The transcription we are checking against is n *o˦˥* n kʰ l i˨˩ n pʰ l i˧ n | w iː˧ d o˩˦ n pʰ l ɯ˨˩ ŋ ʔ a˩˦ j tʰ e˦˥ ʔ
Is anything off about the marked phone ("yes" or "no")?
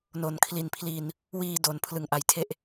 yes